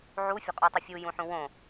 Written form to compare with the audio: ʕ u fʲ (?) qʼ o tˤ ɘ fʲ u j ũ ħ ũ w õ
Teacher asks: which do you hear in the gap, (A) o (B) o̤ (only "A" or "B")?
B